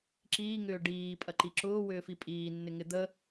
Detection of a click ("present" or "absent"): present